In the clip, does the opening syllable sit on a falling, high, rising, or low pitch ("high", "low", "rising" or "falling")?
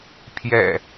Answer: low